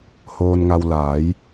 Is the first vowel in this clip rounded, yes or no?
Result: yes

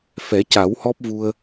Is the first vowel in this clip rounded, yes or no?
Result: no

